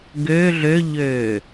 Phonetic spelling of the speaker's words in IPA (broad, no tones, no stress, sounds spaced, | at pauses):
ɡ ø ɮ ø ʎ øː